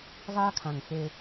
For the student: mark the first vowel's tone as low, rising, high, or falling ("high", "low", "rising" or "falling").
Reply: high